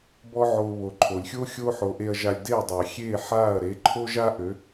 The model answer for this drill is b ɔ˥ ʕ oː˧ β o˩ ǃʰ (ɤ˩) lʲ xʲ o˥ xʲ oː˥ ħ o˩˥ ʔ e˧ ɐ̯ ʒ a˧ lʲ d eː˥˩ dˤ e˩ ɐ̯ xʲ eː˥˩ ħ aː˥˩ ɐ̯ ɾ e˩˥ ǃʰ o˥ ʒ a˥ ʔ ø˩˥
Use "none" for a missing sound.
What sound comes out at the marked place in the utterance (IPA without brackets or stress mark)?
o˩